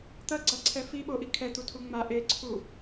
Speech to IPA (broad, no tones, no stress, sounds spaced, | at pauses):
t̪ ɐ ɡ͡ǀ a ǀʰ ɛ f i ɓ o ʔ i kʰ ɛ t̪ u tʰ u ŋ͡m a ʔ e ǀʰ u